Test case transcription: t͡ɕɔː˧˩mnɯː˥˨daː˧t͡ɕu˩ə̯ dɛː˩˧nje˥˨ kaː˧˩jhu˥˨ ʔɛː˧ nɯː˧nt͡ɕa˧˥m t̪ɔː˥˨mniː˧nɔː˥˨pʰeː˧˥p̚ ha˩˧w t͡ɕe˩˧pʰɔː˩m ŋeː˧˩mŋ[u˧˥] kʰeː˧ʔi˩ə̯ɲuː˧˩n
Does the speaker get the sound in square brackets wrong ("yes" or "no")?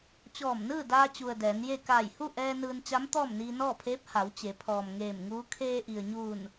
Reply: yes